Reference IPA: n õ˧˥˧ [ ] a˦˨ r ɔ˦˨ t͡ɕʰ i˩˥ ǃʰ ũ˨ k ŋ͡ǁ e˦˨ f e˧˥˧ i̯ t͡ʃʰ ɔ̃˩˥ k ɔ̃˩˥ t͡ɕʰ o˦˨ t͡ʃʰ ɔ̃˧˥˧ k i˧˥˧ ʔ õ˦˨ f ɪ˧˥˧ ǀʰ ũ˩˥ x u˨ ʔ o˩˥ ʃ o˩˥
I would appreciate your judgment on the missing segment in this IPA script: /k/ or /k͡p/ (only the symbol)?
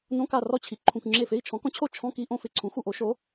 k